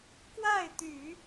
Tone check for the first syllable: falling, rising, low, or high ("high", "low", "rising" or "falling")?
falling